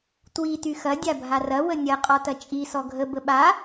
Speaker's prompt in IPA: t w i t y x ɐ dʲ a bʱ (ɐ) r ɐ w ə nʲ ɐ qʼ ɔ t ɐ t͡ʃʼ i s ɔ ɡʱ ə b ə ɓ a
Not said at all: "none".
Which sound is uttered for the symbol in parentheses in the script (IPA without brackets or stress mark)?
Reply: a